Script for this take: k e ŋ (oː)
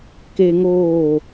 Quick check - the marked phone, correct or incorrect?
correct